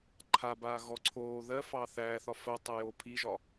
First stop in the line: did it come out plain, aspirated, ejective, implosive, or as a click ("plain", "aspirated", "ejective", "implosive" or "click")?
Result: click